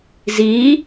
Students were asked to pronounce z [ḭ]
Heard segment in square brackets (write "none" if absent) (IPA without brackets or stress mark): i